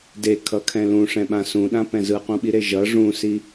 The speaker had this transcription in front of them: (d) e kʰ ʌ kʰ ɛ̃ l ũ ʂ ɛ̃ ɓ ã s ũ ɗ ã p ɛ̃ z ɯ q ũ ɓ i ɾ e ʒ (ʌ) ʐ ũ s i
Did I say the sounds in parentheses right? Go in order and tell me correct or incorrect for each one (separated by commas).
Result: correct, correct